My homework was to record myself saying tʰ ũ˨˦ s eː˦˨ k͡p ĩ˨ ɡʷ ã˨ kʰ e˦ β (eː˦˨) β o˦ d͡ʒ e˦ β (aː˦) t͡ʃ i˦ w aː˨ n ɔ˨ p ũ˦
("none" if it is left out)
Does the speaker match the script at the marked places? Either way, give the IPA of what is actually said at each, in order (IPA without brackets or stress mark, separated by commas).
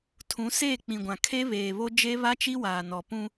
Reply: eː˨, a˦